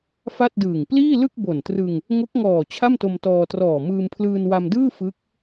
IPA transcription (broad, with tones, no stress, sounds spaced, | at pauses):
f a˥˩ t̚ d ɯː˨˩ ŋ p l iː˥˩ l ɯ˥˩ k̚ b o˨˩ n t r ɯ˧ ŋ | ŋ o˦˥ k̚ ŋ ɔː˨˩ t͡ɕʰ a˥˩ m t o˧ m t ɔː˧ t r ɔː˨˩ m ɯː˧ m pʰ l ɯː˧ n w a˧ m d ɯː˥˩ f ɯ˦˥ k̚